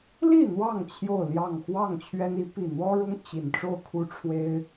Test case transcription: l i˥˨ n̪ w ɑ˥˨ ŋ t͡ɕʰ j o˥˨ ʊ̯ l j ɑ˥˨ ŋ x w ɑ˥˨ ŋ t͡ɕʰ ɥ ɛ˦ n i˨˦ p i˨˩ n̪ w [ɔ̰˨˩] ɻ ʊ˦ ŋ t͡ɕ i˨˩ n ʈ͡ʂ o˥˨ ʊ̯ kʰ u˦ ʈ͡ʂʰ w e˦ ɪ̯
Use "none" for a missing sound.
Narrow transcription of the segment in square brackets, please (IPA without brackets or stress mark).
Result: ɔ˦